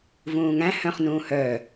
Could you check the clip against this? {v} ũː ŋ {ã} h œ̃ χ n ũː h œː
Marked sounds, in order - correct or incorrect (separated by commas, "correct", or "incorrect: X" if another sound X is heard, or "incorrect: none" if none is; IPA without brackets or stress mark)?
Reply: correct, incorrect: æ̃